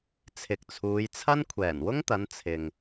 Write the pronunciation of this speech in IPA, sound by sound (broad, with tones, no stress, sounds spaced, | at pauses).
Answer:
t͡sʰ ɪ˨ k̚ t͡sʰ uː˨˧ j t͡sʰ ɐ˥ n kʷʰ ɛː˨˩ n w ʊ˥ ŋ t̪ ɐ˨˧ n t͡sʰ ɪ˨ ŋ